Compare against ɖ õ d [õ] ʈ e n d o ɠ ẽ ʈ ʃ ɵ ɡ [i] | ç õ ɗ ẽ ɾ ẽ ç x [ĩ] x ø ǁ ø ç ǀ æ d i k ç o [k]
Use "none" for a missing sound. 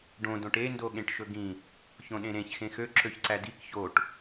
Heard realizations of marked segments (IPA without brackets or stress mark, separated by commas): õ, ĩ, ẽ, ʈ